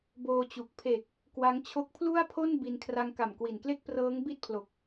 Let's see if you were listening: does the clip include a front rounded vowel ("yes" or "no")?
no